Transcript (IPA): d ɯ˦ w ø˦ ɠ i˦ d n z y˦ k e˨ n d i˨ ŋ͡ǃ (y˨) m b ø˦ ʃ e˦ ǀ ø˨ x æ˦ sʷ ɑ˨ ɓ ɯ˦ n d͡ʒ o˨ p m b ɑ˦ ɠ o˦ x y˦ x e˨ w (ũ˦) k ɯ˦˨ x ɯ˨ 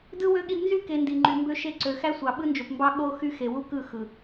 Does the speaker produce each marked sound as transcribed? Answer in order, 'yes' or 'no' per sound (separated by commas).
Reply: yes, no